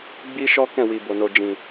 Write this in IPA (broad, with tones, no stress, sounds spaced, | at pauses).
ɡ͡b i˦ ʃ ɔ˦ k ɛ̃˦˨ w i˨ b o˨ n o˨ d͡ʒ ĩ˨